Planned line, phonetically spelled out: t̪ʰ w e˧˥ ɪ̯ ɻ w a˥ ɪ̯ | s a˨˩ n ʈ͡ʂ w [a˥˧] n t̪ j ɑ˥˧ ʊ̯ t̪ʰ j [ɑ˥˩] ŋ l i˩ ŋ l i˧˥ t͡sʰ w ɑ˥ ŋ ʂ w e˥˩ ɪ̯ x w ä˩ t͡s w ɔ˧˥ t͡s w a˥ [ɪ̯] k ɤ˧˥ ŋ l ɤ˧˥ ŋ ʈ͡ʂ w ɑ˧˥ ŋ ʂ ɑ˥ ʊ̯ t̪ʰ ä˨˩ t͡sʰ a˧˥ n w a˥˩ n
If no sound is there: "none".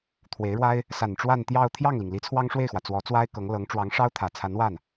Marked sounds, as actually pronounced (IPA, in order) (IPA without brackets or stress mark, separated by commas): a˥˧, ɑ˥˩, ɪ̯